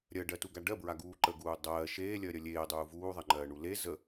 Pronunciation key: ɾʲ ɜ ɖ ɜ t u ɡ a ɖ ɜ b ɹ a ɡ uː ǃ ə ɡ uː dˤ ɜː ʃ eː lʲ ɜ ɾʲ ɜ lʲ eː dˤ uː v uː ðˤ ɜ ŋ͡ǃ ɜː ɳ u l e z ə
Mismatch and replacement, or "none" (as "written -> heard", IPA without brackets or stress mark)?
none